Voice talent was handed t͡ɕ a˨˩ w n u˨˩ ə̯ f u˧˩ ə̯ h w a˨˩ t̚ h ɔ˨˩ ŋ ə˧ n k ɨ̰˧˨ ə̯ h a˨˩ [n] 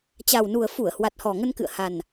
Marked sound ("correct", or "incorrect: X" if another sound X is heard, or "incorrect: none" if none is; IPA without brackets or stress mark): correct